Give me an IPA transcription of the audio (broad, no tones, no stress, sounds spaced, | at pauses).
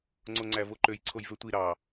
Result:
ŋ͡ǀ o ŋ͡ǀ æ v o ǃ ø j ǀʰ o j v ø tʷ i ɾ ɑ